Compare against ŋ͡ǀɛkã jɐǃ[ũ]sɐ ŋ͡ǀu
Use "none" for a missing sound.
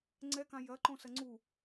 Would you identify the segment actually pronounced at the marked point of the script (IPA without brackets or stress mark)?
õ